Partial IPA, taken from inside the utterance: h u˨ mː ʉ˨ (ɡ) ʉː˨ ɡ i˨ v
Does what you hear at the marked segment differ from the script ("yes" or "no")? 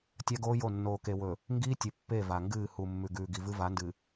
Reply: no